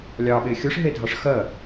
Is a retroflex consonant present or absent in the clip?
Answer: present